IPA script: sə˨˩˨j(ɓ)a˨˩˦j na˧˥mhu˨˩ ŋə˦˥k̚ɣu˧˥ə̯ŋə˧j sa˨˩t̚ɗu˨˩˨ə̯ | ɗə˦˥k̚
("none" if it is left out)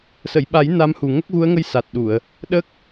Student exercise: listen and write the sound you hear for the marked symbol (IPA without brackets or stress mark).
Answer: ɓ